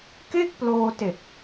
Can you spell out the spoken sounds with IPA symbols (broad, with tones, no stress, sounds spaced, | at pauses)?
k e˥˩ k̚ p l oː˧ t e˨˩ k̚